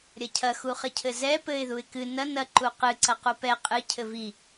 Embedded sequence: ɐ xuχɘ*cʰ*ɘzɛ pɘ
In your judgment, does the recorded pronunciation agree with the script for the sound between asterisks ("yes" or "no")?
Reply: yes